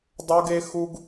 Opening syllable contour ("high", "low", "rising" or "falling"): high